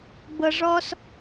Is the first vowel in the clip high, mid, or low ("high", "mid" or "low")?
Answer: mid